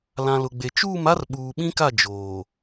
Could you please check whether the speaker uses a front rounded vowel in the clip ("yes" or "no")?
no